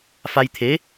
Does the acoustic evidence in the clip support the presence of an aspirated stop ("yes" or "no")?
yes